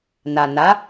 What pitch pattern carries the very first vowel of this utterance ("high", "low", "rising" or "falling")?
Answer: low